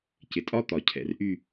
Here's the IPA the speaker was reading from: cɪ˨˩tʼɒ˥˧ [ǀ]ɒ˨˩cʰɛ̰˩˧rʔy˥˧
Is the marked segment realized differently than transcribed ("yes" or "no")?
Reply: yes